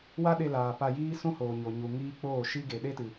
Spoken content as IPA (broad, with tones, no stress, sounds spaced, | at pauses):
w a˦ ɗ e˧ l aː˨ p a˧ j iː˦ s ũ˦ h oː˨ ɲ o˨ ɲ u˨ ŋ iː˦ k͡p oː˦˨ ʃ i˦ ɡ e˨ ɗ e˦ t ɨ˨